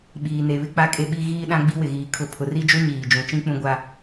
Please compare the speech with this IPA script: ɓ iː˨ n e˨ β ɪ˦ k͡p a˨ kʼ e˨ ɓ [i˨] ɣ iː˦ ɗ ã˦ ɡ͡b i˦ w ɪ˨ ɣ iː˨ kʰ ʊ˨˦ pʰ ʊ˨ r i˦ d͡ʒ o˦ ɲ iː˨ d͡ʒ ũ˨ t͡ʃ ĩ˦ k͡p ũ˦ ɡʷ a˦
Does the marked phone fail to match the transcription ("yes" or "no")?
no